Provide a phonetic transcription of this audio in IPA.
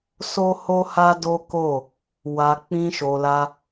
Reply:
s o˦ h o˦ h a˦ d o˦ k o˦˨ | w a˧ k͡p ĩ˦ ʃ o˧ l a˦

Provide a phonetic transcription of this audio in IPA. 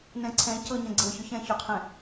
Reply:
n ɛ̃ ǀʰ ɛ̃ c ɤ ɲ ɛ̃ ɡ͡ǀ ɤ ç ʏ ç ɛ̃ ç ʏ qʰ ɛ̃

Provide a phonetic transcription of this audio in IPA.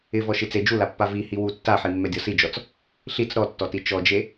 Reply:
ɪ v ɔ ʃ i t͡s e d͡ʒ u l a pː a v i h i w u tː a ħ i mː ɛ dʲ ɔ s i d͡ʒ ɔ t͡s | ɬ i t͡s ɾ ɔ tː ɔ t i t͡ʃ ɔ d͡ʒ e

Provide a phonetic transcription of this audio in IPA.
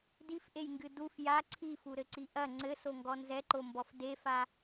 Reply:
d i f ʔ e j ŋ ɡ ɨ d u f j a ǀʰ i f u ɾ ɘ ǀ i ʔ ɐ ŋ͡ǀ ɘ s o ŋ ɡ ɔ n z ɛ ǃ o m b ɔ f d e f a

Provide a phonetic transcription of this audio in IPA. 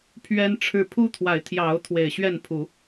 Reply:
pʰ ɥ ɛ˦ n ʈ͡ʂʰ ɻ̩˥˨ pʰ u˦ t̪ʰ w a˨˦ ɪ̯ t̪ʰ j ɑ˨˦ ʊ̯ t̪ʰ w e˨˩ ɪ̯ ɕ ɥ ɛ˥˨ n pʰ u˨˦

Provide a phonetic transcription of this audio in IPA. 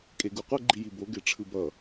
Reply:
kʼ e ɡ u qʷ ɛ ɡ͡ǃ i j i b o ɡ e ʈ͡ʂʰ ɯ b ʌ

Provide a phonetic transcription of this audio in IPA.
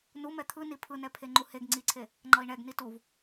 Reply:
n u m ɛ t̪ʰ ɯ n i pʰ ɯ n ɛ pʰ e ŋ͡ǃ u h e ɡ ŋ͡ǀ i ǀʰ e | ŋ͡ǃ ʌ i̯ ɳ ɛ ɡ n i t u v

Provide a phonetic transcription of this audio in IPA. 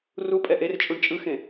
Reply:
r u pʼ ɛ ʔ e r t͡ʃʼ u ɳ t͡ʃʼ ɯ x ẽ

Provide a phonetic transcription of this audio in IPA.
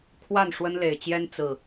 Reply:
kʰ w a˥˨ n ʂ w ə˦ n l e˨˩ ɪ̯ t͡ɕ j ɛ˦ n t͡s ɹ̩˨˩

